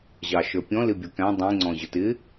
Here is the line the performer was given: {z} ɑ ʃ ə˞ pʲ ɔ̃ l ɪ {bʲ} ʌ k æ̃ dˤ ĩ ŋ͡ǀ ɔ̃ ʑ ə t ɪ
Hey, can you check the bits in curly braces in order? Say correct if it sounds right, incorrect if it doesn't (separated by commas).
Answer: incorrect, correct